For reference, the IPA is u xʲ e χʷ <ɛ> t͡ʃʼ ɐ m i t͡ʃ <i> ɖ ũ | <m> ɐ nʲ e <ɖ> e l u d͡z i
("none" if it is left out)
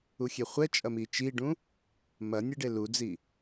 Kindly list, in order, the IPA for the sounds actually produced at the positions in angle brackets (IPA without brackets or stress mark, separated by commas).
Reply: ɛ, i, m, ɖ